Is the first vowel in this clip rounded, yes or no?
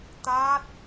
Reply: no